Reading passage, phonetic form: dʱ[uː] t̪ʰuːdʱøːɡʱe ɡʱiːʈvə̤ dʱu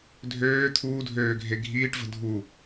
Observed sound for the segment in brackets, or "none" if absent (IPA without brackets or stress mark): øː